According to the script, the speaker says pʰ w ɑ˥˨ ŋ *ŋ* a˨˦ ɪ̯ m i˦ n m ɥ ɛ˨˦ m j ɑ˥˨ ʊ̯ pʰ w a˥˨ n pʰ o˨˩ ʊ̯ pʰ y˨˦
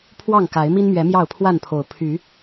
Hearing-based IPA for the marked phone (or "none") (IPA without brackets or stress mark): k